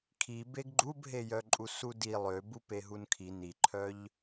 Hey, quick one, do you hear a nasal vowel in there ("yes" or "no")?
no